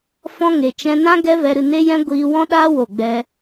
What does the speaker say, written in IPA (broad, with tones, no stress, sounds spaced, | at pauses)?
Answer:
f ɔ̃˧ ŋ e˨ t͡ʃ ɛ̃˧ n ã˦ ɡ ɛ˦ v ɛ˧ ɾ ɨ˦˨ n e˦ j ɛ̃˦ ɡʷ iː˧ w ɔ̃˦ ɗ aː˦ w o˦˨ ɡ͡b ɛ˦